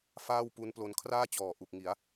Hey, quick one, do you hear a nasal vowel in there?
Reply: no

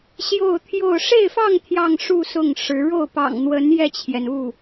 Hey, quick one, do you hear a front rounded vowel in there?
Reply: no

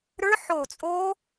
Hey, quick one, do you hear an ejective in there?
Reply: yes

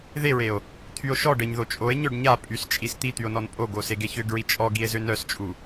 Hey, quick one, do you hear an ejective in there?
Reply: yes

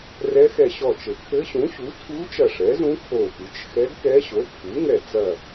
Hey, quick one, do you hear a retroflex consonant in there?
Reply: yes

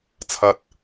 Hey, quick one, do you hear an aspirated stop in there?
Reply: yes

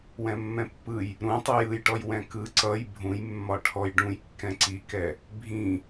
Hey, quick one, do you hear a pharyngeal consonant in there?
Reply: no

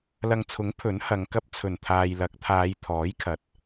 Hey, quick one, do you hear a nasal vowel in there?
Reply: no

